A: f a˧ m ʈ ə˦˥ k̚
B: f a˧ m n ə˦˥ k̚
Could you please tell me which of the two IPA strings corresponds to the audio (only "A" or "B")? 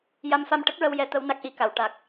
A